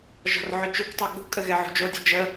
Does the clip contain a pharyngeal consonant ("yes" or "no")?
yes